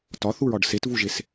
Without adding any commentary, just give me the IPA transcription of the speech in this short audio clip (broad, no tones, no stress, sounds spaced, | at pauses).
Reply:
t ɒ θ u ɹ ɒ ɖ s e t v u ʒ e s